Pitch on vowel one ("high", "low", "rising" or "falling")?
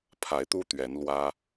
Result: rising